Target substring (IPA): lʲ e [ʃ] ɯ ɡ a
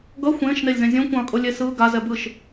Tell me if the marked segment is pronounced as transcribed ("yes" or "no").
no